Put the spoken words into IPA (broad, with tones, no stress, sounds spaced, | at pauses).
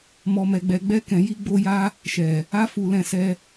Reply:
m ɔ˧ m ɛ˧ ɡ͡b ɛ˧ ɡ͡b ɛ˦ k ɛ̃˧ j i˦ ɡ͡b o˦ j a˦ | ʃ ɛ˨ | a˧ f u˨ l ɛ̃˧ s ɛ˧